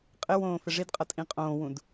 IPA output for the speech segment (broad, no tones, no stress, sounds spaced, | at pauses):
qʼ ɪ w õː f ɪ ʐ i d qʼ ʌ tʼ ĩ qʼ õː w ũ d